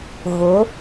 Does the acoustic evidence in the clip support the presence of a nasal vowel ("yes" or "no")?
no